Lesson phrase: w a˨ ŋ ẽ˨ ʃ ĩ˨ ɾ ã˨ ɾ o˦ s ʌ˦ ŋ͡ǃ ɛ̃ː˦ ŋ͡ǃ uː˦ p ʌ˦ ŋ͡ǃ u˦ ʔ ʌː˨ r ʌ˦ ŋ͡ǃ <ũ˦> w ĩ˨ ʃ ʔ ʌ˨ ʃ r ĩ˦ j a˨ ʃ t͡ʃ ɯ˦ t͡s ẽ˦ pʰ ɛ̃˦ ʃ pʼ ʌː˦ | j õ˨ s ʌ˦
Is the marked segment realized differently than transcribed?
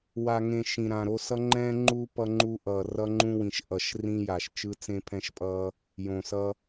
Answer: no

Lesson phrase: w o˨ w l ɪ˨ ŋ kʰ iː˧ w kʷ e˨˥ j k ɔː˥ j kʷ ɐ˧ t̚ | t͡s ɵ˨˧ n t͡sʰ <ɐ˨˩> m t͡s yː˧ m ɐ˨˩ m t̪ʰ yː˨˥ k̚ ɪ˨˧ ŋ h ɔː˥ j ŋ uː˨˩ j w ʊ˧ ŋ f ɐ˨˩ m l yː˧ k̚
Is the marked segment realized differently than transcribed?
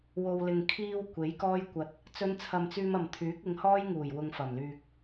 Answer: yes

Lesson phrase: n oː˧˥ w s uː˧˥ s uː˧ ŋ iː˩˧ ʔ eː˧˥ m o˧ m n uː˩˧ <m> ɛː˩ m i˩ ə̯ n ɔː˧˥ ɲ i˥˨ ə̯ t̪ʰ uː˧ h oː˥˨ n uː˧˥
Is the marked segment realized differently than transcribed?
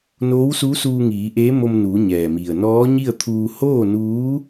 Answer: yes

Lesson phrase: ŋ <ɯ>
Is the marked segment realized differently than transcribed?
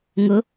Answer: yes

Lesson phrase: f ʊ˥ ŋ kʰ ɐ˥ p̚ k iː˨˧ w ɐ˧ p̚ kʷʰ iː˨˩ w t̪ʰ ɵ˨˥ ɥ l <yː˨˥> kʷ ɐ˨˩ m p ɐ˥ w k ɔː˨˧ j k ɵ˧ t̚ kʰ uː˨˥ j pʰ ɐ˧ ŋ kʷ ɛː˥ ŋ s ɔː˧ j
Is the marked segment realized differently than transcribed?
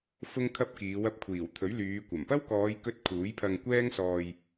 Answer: yes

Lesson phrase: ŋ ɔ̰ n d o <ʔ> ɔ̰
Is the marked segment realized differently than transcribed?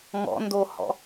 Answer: yes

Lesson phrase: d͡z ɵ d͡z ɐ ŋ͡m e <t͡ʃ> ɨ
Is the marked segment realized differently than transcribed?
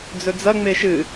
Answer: yes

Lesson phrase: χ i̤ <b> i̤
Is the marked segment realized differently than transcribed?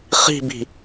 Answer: no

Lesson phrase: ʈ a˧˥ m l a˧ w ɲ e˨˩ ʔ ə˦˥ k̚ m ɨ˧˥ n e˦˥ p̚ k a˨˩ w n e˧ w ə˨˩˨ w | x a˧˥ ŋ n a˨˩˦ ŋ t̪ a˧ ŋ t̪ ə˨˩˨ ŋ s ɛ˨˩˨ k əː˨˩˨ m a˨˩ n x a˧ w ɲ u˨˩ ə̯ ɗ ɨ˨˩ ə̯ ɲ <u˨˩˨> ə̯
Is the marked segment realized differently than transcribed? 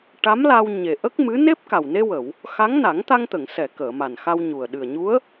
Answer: yes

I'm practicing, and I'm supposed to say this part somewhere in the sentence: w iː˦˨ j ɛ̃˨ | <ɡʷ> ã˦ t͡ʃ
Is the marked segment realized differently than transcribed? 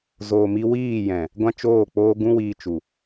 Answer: no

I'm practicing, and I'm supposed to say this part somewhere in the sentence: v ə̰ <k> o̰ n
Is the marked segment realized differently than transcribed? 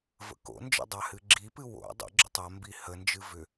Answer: no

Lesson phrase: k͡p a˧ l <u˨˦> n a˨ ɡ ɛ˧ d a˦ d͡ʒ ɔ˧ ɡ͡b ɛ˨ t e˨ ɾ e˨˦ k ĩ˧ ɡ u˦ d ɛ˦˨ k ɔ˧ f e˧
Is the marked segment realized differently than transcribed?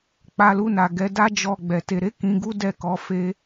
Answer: yes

